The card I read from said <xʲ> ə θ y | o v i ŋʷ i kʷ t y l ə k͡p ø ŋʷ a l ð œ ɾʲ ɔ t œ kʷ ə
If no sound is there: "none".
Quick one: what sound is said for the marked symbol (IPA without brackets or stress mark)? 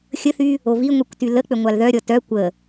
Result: xʲ